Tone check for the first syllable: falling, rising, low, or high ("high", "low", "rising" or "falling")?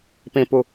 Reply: low